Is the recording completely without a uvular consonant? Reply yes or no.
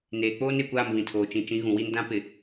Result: yes